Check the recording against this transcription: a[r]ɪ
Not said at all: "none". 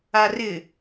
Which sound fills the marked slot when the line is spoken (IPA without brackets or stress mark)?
r